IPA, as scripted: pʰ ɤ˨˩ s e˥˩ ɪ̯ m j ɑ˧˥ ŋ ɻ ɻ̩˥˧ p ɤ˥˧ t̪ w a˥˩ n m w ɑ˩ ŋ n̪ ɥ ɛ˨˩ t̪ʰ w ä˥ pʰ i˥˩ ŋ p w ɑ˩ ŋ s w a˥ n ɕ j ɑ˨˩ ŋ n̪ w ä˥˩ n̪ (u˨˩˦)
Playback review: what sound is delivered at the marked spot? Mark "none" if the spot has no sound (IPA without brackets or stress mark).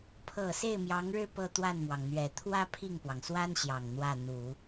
u˨˩˦